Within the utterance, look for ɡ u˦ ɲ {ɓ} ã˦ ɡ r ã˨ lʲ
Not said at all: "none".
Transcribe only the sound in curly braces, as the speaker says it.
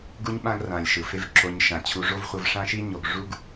ɓ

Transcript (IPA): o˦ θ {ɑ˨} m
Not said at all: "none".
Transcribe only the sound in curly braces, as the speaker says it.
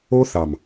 ɑ˨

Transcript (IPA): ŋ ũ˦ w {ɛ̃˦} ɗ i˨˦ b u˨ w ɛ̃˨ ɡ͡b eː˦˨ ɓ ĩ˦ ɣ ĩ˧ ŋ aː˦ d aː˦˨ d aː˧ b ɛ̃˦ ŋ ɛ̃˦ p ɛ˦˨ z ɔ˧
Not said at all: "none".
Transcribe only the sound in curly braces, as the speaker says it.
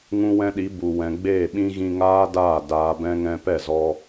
ɛ̃˦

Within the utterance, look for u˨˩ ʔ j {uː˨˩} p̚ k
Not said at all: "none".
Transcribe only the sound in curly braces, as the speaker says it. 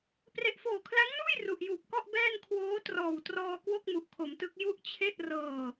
uː˨˩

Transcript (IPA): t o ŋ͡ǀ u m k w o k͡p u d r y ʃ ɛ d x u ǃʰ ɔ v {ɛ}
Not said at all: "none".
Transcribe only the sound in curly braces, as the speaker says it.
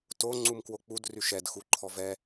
ɛ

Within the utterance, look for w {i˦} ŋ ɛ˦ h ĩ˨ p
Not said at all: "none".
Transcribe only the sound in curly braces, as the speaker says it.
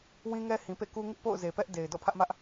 ĩ˦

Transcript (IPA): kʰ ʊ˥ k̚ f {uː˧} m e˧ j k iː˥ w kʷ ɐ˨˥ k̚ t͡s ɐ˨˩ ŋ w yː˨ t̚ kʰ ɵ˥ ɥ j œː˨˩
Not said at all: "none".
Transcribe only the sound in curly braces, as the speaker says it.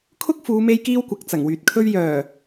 uː˨˧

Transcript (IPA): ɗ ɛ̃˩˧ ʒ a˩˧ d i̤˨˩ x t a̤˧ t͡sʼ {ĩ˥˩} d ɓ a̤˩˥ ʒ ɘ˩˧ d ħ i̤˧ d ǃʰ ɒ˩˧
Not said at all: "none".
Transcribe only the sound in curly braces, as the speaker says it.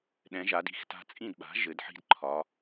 ĩ˥˩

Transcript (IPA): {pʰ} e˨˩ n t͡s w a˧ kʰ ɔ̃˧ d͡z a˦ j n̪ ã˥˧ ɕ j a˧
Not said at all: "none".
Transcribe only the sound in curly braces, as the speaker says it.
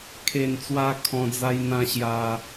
kʰ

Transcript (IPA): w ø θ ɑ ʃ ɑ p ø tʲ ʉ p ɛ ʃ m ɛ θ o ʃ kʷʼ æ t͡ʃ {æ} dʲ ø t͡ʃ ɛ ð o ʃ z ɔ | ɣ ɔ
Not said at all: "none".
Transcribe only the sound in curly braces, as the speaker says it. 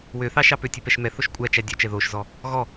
æ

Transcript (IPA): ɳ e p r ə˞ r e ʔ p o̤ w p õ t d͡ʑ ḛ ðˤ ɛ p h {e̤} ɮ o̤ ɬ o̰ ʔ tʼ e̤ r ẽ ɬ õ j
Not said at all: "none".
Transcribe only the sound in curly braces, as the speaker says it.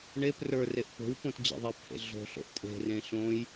ḛ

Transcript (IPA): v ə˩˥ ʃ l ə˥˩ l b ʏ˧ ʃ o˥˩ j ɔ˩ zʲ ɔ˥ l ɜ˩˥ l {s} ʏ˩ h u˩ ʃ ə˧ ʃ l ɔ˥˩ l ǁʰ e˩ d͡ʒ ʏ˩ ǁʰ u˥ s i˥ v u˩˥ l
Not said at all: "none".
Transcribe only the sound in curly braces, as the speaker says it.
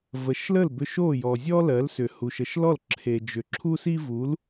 s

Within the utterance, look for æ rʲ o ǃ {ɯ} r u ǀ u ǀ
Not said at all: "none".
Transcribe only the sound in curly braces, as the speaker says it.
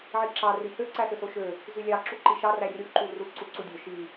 u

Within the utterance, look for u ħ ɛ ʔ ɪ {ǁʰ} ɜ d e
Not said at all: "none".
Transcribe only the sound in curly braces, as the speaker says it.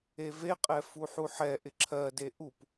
ǁʰ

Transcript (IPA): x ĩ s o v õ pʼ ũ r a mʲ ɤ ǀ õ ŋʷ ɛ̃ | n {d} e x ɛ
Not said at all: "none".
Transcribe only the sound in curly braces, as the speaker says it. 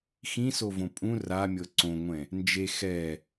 d͡ʒ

